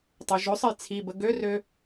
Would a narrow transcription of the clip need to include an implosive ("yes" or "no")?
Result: no